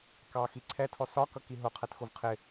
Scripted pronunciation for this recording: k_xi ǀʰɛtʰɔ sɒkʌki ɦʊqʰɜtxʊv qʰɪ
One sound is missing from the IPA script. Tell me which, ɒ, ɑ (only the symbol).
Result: ɑ